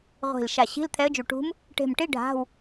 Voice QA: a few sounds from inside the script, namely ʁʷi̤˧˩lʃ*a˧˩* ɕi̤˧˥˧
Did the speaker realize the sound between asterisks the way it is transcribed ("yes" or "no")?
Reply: yes